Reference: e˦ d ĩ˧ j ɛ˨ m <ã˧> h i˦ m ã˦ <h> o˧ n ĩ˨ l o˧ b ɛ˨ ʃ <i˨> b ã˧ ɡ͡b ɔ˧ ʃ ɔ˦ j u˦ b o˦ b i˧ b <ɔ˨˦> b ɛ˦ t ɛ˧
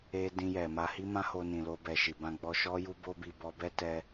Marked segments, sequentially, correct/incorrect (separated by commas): incorrect, correct, correct, incorrect